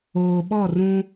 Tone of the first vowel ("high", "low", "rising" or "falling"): low